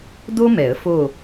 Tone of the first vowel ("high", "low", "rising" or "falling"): high